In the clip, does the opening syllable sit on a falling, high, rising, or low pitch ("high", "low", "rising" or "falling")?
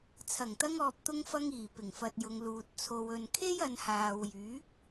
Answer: low